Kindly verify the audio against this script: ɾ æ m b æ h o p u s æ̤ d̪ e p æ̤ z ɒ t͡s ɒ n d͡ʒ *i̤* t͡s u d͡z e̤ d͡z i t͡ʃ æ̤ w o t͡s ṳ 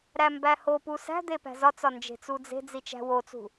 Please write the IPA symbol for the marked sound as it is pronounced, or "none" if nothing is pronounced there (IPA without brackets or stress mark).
e̤